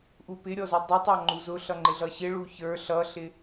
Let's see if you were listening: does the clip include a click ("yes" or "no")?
yes